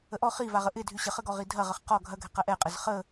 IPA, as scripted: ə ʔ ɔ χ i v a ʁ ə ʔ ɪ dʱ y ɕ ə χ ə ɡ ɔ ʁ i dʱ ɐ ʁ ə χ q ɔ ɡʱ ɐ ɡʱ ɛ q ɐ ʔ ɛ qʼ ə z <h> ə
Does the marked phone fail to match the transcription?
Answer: yes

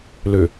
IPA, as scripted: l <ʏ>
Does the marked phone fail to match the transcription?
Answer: no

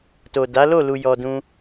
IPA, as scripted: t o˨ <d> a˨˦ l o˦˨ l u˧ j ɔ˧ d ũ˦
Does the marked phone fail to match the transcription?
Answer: no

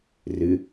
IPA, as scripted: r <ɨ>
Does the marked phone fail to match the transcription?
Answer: no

